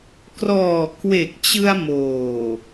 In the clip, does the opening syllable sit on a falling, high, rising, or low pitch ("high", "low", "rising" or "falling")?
low